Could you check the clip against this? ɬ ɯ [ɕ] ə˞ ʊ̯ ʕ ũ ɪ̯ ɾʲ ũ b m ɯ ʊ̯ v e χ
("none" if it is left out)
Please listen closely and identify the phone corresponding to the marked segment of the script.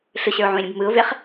ɕ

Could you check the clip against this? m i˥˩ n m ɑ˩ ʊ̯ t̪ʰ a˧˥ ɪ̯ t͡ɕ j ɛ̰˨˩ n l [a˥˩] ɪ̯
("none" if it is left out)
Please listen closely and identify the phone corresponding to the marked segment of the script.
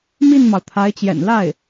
a˥˩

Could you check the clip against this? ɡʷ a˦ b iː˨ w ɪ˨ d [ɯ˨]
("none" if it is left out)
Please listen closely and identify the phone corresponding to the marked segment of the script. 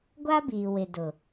ʊ˨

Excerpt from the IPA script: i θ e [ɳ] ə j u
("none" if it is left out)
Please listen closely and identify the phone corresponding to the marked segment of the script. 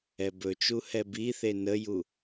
n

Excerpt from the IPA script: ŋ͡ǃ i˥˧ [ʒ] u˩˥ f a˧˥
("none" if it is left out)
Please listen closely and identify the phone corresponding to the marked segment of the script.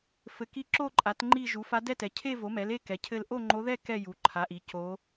ʒ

